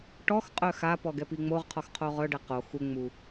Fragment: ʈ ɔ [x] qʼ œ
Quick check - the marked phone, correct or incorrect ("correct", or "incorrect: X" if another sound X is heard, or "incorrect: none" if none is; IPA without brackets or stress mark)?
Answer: correct